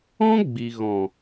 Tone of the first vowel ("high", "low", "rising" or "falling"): high